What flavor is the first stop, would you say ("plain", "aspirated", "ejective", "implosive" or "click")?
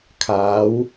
aspirated